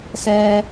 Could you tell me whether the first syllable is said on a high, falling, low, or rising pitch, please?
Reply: low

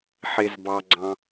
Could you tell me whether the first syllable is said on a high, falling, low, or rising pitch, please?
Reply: high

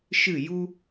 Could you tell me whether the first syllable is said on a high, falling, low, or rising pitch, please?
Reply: falling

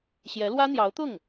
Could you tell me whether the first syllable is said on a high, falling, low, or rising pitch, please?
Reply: rising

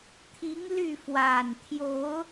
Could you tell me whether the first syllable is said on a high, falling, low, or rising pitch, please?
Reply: rising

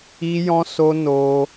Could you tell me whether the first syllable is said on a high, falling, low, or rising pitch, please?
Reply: high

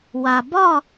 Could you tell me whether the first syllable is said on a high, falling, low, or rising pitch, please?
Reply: low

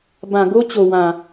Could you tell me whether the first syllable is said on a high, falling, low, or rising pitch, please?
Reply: low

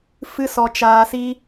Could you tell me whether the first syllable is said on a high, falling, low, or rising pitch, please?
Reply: high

